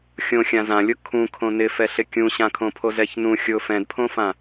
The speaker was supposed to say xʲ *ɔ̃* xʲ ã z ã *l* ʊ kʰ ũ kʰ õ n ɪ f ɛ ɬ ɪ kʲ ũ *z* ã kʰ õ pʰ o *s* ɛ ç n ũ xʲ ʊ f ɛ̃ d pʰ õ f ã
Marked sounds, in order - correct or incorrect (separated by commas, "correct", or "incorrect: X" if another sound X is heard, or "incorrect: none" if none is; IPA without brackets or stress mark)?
incorrect: õ, incorrect: lʲ, incorrect: ɕ, incorrect: z